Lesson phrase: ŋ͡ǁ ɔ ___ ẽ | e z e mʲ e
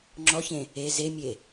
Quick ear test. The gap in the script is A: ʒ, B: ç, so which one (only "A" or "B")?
B